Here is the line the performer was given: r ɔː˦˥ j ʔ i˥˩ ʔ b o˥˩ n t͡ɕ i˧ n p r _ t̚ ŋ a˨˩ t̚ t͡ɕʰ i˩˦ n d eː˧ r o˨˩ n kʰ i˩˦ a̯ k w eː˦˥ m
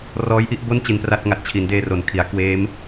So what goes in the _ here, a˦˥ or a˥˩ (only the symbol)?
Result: a˥˩